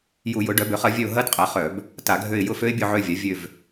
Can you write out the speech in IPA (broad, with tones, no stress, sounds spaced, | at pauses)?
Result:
j u˧˩˧ j ʊ˩˥ ɖ œ˩˥ b ø˩˥ χ ɐ˩˥ vʲ œ˦˨ ʊ̯ ɦ ɐ˦˥ d qʼ ɐ˩˥ χ œ˧˩˧ b | t a˧˩˧ ɡʱ ø˦˨ ɪ̯ j ʊ˦˨ f ø˦˥ ɪ̯ bʲ ʊ˦˨ ʕ ø˦˨ vʲ a˩˥ vʲ ø˦˨ v